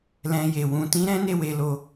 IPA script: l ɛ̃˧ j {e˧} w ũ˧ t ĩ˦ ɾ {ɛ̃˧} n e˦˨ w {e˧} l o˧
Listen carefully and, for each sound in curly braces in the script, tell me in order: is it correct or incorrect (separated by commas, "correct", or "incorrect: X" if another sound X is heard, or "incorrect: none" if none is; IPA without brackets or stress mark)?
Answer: incorrect: e˨, incorrect: ɛ̃˦, correct